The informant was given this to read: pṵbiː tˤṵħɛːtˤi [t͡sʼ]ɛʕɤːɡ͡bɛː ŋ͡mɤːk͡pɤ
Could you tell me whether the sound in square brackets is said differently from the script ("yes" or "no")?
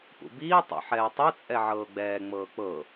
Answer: no